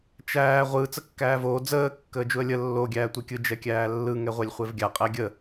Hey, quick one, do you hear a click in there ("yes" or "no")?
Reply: no